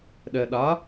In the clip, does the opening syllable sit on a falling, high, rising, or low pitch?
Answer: low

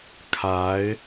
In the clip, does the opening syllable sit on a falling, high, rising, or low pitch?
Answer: rising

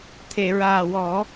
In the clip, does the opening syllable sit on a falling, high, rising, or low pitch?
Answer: low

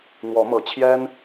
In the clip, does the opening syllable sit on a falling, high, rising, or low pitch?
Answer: rising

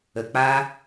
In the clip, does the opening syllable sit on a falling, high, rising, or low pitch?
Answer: low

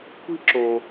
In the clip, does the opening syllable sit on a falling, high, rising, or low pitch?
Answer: high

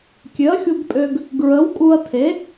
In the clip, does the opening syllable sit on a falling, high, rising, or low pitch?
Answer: rising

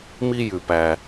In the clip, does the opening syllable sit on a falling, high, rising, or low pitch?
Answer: high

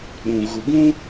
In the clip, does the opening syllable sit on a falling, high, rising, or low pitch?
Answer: low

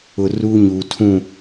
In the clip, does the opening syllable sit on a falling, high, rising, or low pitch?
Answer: low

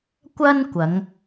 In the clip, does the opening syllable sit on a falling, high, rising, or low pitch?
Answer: high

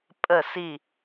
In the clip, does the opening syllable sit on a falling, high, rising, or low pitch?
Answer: falling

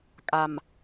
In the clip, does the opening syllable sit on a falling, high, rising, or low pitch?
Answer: low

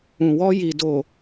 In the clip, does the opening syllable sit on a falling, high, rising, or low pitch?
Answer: low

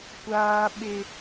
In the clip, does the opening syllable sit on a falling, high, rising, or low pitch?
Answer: high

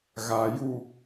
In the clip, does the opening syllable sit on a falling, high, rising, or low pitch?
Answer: low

